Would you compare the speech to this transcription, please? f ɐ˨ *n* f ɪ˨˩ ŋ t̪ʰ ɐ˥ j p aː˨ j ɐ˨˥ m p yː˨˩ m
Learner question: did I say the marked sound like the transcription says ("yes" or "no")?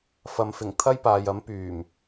no